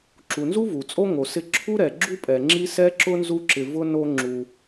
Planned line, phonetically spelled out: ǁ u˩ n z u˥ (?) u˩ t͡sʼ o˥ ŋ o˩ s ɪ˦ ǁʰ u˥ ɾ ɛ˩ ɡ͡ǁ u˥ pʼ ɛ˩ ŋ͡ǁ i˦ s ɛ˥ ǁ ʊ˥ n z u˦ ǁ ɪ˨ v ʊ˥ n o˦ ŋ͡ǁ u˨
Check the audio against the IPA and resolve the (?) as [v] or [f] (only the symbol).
v